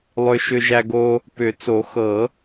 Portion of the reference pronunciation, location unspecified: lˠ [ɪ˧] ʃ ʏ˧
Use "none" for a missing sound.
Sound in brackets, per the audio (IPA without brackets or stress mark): ʏ˧